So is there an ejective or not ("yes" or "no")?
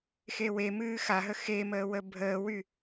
no